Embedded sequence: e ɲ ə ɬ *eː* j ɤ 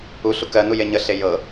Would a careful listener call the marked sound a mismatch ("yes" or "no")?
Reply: yes